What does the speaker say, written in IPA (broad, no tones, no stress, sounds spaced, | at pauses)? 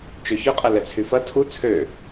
t͡ʃ ø ç ʏ qʼ ɐ l ɛ t͡sʰ y f ɐ tʰ u t͡sʰ ø